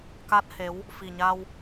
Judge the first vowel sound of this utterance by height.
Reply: low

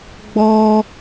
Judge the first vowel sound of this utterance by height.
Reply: mid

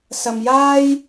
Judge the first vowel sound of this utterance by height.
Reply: low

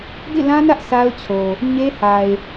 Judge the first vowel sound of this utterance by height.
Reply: high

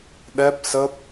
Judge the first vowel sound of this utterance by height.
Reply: mid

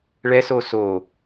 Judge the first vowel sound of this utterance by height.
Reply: mid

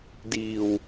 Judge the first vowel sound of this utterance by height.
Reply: high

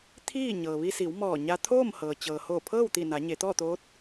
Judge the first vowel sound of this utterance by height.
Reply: high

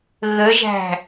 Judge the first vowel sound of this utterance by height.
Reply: mid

